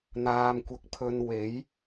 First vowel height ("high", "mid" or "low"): low